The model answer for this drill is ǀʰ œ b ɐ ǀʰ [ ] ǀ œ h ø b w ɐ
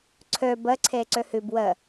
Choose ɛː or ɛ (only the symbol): ɛː